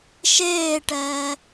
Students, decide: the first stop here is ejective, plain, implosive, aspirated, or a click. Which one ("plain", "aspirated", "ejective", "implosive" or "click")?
plain